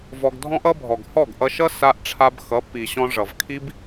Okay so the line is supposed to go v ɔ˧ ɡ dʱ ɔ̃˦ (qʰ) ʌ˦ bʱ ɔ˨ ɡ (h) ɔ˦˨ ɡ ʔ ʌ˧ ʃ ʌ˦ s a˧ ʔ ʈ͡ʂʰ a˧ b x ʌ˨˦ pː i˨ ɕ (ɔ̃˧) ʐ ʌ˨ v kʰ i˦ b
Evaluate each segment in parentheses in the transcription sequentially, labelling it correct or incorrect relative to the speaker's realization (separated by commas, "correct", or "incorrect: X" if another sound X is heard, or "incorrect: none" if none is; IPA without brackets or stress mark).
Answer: incorrect: ʔ, correct, correct